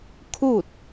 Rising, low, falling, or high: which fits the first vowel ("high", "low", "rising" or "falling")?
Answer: falling